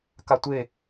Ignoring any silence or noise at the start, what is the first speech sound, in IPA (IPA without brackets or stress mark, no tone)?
k